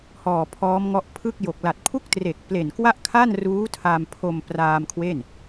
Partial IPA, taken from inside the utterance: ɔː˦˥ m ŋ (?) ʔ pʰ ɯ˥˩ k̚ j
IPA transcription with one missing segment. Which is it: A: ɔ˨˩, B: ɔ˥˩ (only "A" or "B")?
B